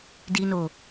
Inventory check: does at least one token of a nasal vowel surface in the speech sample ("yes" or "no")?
no